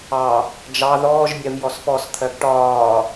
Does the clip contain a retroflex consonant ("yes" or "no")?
yes